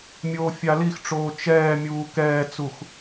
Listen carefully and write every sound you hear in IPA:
mʲ oː fʲ a l i x ʈ͡ʂ oː t͡ʃ ɛː mʲ uː k ɛː t͡s u x

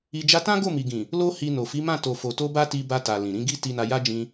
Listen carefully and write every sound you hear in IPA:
i˧ d͡ʒ a˦ t ã˦ ɡ o˦˨ m i˨ ɡ ĩ˨ | l o˦ h i˧ n o˨ f i˨˦ m ã˦˨ t o˨ f o˨ t o˧ b a˦ t i˧ b a˧ t a˨ l ĩ˨ ɾ ĩ˨˦ ɡ i˦ t i˧ n a˧ j a˦ d͡ʒ ĩ˧

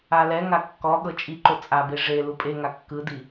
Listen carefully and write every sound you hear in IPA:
a l ɛ ŋ a kː ɔ ɠ ɤ t͡ʃʼ i ǃ o t͡sʼ a b e ʐ e l u pʼ e ŋ a kː ɯ d i

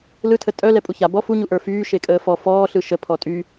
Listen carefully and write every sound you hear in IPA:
l ɯ tʰ ə tʼ œ l ɛ pʼ u ç a b ɔ f u ɲ u ʔ ə˞ f yː ʃ e kʼ əː f ɔ f ɔː ɬ ɯ ʃ ə pʰ ɔ tʼ y

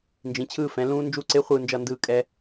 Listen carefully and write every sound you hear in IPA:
n d͡ʒ ĩ˩˥ t͡ɕʰ ɯː˥˨ f ɛ̃˩˥ l ũː˦˥ n d͡ʒ u˦˥ ǀ e˦˥ χʷ ɯː˥˨ n d͡ʒ ʌ˥˨ n d ɯː˥˨ kʼ ɛ˦˥

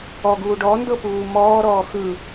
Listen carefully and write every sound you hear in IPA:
ɔ ɡ uː ɖ ɔ n d ɤ p uː m ɔː ɾ ɔː x ɯ

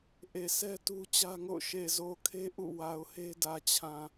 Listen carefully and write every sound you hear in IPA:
ʔ e˨ sʰ ɛ˦ t u˦ t͡ɕ ä˦ ŋ o̰˦˨ ʊ̯ ʃ e˨ z o˨ kʰ e˦ ʔ ṵ˦˨ w a˨ ʊ̯ h e˦ d ä˨ t͡ɕʰ ã˨

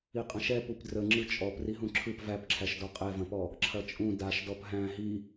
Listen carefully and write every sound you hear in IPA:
i qʼ ɐ̃ ʃ ɛ p u p d r ə ŋ͡ǁ ɯ t͡ʃʼ ɔ p r i ɦ ũ ǁʰ ɯ p v æ p ǁʰ æ ʃ d ɔ qʼ ɛ v ɐ̃ p ɔ | ǁʰ ɐ t͡ʃʼ ũ d a ʃ d ɔ p ɦ æ̃ ɦ i

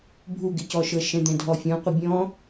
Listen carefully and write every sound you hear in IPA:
bʱ u ɡ ɪ c ɔ ʃ ɤ ʃ ɛ̃ d̪ ɛ̃ dʱ ɔ fʲ ɔ̃ qʷ ə bʲ ɔ̃

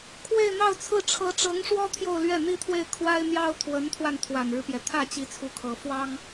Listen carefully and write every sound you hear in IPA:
kʰ w e˥˧ ɪ̯ n̪ ɑ˥˧ ʊ̯ t͡sʰ ɹ̩˥˩ ʈ͡ʂʰ ɤ˧˥ ʈ͡ʂ ɤ˧˥ ŋ ʂ w ɔ˥ t̪ʰ j o˥˧ ʊ̯ l ɥ ɛ˥˩ n̪ i˥ t̪ʰ w e˥˩ ɪ̯ kʰ w a˥ ɪ̯ n̪ j ɑ˥ ʊ̯ t̪ʰ w ə˧˥ n t̪ʰ w a˧ n t̪ʰ w a˨˩ n ɻ ɻ̩˦ p j ɛ˩ t̪ʰ ä˥˩ t͡ɕ i˧˥ t͡sʰ u˧˥ kʰ ɤ˨˩ f w ɑ˥ ŋ

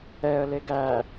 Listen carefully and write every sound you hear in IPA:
ɛ ə̯ l e ɡ æ

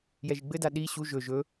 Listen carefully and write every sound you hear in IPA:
j ɛ ʒ i ɡ͡b ɘ d a ɗ i ɕ u ʒ ɵ ʒ ɵ

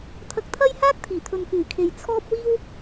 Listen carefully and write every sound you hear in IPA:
t̪ʰ ɐ˧ k̚ t̪ʰ ɐ˥ j h aː˥ k̚ t̪ʰ iː˨˩ t̪ʰ ɵ˨ n k yː˨˩ kʰ e˨ j t͡sʰ ɔː˥ p̚ w iː˥ w

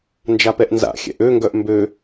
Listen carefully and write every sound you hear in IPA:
n d͡ʒ a p ɛ ʔ n z a̰ xʲ ɛ̰ ʔ ø ŋ ɡ œ ʔ m b ø

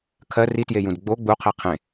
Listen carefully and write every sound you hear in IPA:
kʰ ɜ r i t j e j ũ d ɡ͡b o ɡ͡b u qʰ i qʰ ẽ

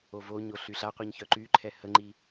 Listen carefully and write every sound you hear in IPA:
o v o ɲ o ɬ y ɬ a qʷ i ɲ ç œ ǃ y ǃʰ ɛ h ə ŋ͡ǃ i

